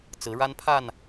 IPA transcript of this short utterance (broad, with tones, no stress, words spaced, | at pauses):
t͡sɹ̩˨˦ɻa˦npʰa˥˨n